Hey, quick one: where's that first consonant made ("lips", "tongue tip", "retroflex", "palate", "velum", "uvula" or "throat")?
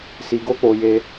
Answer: tongue tip